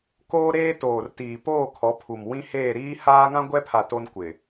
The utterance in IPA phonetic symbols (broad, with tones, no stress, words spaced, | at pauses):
koː˦ ɾeː˦toː˨rtiː˨poː˦˨ kʰɔ˨˦pʰu˨m wĩ˦heː˦˨ ɾiː˦haː˦ŋã˦ ɡʷɛ˦pʰa˨ to˦nkʷɪ˨